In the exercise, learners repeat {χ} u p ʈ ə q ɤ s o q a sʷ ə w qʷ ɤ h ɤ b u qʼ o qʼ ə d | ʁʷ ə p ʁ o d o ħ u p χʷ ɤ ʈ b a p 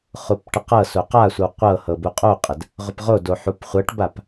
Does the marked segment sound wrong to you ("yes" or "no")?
no